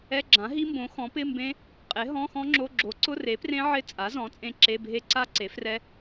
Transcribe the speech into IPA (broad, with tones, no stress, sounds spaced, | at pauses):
ɛ˧˥˧ ɡ͡ǁ ã˩˥ ɦ i˦˥ m b õ˩˥ x ɔ̃˩˥ p ɪ˧˥˧ m b ẽ˦˥ | qʼ e˩˥ ɦ ɔ̃˧˥˧ x ɔ̃˦˥ ŋ͡ǁ o˧˥˧ ɡ͡ǁ o˩˥ ǀ ʊ˧˥˧ r e˩˥ p r ẽ˦˥ ʕ ɪ˦˥ t͡sʼ a˩˥ z ɔ̃˩˥ t͡sʼ ẽ˦˥ ǁ e˧˥˧ bʱ e˦˥ ǀ a˦˥ ǀ e˩˥ f r ɛ˦˥